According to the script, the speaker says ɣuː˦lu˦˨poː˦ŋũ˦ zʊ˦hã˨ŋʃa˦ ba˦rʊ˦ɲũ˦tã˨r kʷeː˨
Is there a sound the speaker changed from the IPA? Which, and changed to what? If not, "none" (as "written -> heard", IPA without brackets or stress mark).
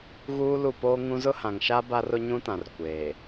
none